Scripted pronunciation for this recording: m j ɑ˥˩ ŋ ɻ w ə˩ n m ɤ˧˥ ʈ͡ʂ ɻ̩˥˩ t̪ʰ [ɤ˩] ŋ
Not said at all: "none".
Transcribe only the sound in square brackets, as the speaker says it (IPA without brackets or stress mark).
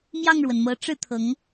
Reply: ɤ˧˥